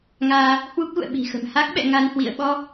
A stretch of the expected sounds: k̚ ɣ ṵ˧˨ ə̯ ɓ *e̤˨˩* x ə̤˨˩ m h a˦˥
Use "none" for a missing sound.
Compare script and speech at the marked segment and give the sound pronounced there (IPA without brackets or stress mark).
i̤˨˩